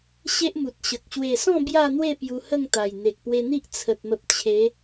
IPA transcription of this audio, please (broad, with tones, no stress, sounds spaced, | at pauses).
ɕ e˦ ʔ m u˨ t̚ ɕ ə˨ k̚ ɕ w e˨˩ s ɔ̃˥˧ b j a˥˧ n̪ w e˥˧ p j u˧ h ə˥˧ ŋ t̪ a˨˩ j n̪ e˨ k̚ p w e˧ n̪ i˦ ʔ t͡sʰ ə˨ t̚ m ə˨ p̚ t͡ɕʰ e˨˦